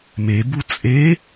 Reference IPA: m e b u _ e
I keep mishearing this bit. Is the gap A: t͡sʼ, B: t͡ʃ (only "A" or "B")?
A